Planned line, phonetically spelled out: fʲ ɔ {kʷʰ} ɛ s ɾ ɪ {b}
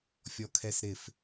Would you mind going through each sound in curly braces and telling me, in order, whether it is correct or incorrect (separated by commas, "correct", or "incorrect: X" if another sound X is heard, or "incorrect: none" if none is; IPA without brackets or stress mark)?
incorrect: kʰ, incorrect: f